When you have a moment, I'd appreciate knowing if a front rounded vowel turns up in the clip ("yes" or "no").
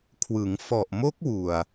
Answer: no